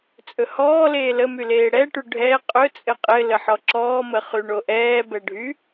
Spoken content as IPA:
t͡sʼ ɵ h ɔː l eː l ə m y l eː ɽ ɛ ʈ y ɖʱ ɛ qʼ ɵ t͡sʼ ɘ qʼ ɘ l ə ħ ɔ ǁ ɔː m ə χ y ɳ o ʔ ɛː b ɛ ɖʱ y

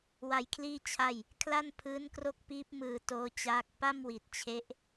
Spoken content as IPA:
w a˧ j kʰ l iː˥˩ t͡ɕʰ a˥˩ j | kʰ l a˥˩ n pʰ ɯː˦˥ n k r o˥˩ k̚ p iː˦˥ p̚ m ɯː˧ t oː˦˥ t͡ɕ aː˦˥ k̚ p a˥˩ m w i˨˩ t̚ t͡ɕʰ e˦˥ ʔ

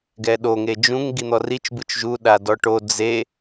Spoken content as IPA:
ɡ ɛ ɗ o ŋ e d͡ʒ ũ ŋ ɡ i n̪ ɔ r i t͡ʃ b ɯ t͡ʃ ʒ u ɗ a d ɔ ʈ o d͡z e

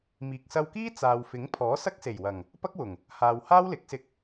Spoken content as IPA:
m iː˨ k̚ s ɐ˧ w k iː˥ t͡s aː˨ w f ɪ˨˥ ŋ pʰ ɔː˨˥ s ɐ˥ k̚ s e˨˩ j w ɐ˨˩ ŋ | p ɐ˥ k̚ w ʊ˨˩ ŋ | h aː˨ w h aː˥ w l ɪ˨˥ k̚ s ɪ˧ k̚

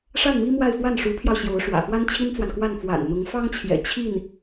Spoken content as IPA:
ʂ a˥˩ n m i˥ m w a˥˧ ɪ̯ f w a˥˩ n ʂ u˧˥ pʰ j ɑ˧ ʊ̯ ɕ j o˧˥ ʊ̯ ʂ w ä̰˨˩ f w a˥ n t͡ɕʰ i˥ n t͡s w a˨ n k w a˥˩ n f w a̰˨˩ n n̪ ʊ˧˥ ŋ f ɑ˥ ŋ t͡ɕʰ j ɛ̰˨˩ t͡ɕʰ i˥˩ n

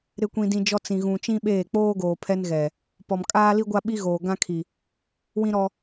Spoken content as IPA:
ɾ ɪ˦ kʷ ĩ˦ d ĩ˦ d͡ʒ ɔ˦ t͡s ĩ˨ ɣ ũ˨ t͡ʃ ĩ˦ ɓ eː˦˨ k͡p oː˦ ɡ oː˨ pʰ ɛ˦ n ɣ ɛ˨ | p ɔ˨ m kʼ aː˦ l i˦ ɡʷ a˦ ɓ i˦ ɣ oː˨ ɡ ã˦ kʰ i˨ | w ĩ˦ ɾ ɔ˦

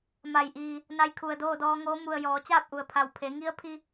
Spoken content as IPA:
m a˩ j ʔ iː˩ | n a˧ j kʰ u˩ ə̯ d oː˥˨ d ɔː˧ ŋ oː˧˥ m u˩ ə̯ j ɔː˩˧ t͡ɕ aː˥˨ p̚ ʔ u˩ ə̯ pʰ a˧˩ w pʰ e˩˧ ŋ i˧˥ ə̯ pʰ i˧

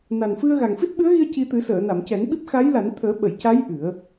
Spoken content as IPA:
n a˨˩ n f ɨ˧ ə̯ ɣ a˨˩ ŋ f i˦˥ t̚ ɓ ɨ˧˥ ə̯ ɣ i˧ ə̯ c i˧ t̪ ɨ˨˩˦ s əː˨˩˨ n a˨˩˨ m c ɛ˨˩˦ n ɓ i˦˥ p̚ x a˧˥ j l a˨˩˦ n t̪ʰ əː˨˩˦ ɓ ə˨˩˨ j c a˧˥ j ʔ ɨ˨˩˦ ə̯

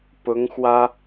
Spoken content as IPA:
p ʊ˧˥ ŋ x w ä˥

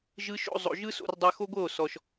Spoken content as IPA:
ʒ ɯ˧ ʃ o̰˧ zˤ o̰˨ ʒ ɯ˦ s o̰˧ r dˤ a˧ x o˦ ɡʷ ɤ˦˨ o̯ s ɔ˨ ʃ

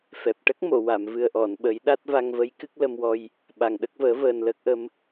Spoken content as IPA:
f ɛ˨˩ p̚ ʈ ə˦˥ k̚ m o˨˩˨ w a˨˩˨ m v ɨ˨˩ ə̯ ʔ ɔ˨˩˨ n ɓ ə˨˩˦ j ɗ a˦˥ t̚ v a˧ ŋ v ə˧˥ j k ɨ˦˥ k̚ l ə˧ m w ɔ˧ j | ɓ a˨˩ ŋ ɗ ə˦˥ k̚ v əː˨˩˦ v əː˨˩ n l əː˦˥ k̚ ʔ ə˧˥ m

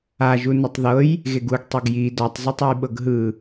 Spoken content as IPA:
a ʒ u n ɛ tˤ ð ɤ j | ɣ e ɡ u ɡ tˤ e ɡ j i d ɔ tˤ z o tˤ u j ɓ ɤ ɡ ɦ ɯ

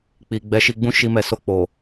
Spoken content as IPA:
k͡p i˨ ɡ͡b ɛ˨˦ ʃ i˧ ɡ͡b ũ˦ ʃ i˧ m ɛ˨ s o˧ k͡p o˨

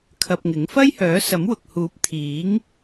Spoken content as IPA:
kʰ ɐ˧ p̚ ŋ ɪ˨˥ ŋ f ɐ˥ j h œː˨˥ s ɐ˨˥ m w ʊ˨ k̚ h uː˨˥ p̚ t̪ʰ iː˨˥ ŋ

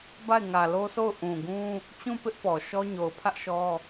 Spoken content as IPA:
b a˦˨ ɪ̯ ŋ ä˨ l o˦ sʰ o˦˨ ʊ̯ ʔ ũ˨ ɡ ũ˦ | t͡ɕ ũ˦˨ p ɪ˦ ʔ p ɔ˨ ʃ ɔ˦ ɲ o˨ ʊ̯ pʰ ä˦ ʔ ʃ ɔ˦

